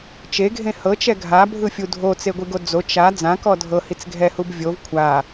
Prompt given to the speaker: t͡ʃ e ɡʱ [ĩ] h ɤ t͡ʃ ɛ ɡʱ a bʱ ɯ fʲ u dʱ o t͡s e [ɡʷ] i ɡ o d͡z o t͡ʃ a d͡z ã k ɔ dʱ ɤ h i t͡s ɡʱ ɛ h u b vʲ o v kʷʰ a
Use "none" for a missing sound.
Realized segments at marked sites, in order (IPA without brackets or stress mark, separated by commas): ẽ, ɡʷ